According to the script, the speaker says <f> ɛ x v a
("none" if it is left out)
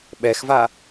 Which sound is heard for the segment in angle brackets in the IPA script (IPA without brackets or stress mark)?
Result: ɓ